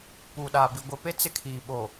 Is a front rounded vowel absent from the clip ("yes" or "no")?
yes